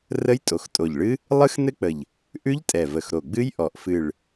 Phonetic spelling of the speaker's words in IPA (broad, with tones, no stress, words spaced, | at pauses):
rə˦˥jtʼo˨˩xtʼo˨˩ʎɭɨ˦˥ | lˠɨ˦˥xnɘ˦˥k͡pə˨˩ʎ | ʔʉ˦˥ʎtʼɛ˨˩və˨˩x ɾo˨˩ɡ͡bɨ˦˥jʔɔ˨˩ʔ fɨ˨˩ɭ